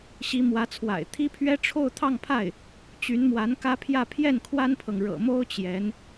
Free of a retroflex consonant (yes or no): no